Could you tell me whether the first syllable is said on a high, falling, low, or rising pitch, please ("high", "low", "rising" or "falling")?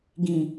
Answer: low